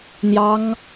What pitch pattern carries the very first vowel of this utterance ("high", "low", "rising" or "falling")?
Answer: high